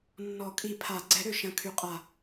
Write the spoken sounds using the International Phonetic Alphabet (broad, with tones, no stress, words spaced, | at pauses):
nːɔ˨˩˦kʼi˨˩˦pʰa˨˩˦ ɡ͡ǀɛ˨˩˦ɾø˨˩ʃɐ̃˨˩ kʰy˨˩qʼa˨˩